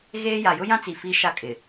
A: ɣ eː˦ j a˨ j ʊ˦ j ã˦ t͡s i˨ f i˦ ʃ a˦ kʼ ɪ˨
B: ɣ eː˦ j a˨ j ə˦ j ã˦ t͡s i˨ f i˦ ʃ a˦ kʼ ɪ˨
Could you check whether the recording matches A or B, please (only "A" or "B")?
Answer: A